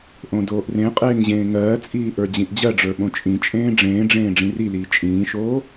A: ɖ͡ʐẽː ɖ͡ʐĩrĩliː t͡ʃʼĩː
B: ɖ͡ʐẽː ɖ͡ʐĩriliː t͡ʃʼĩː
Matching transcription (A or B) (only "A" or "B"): B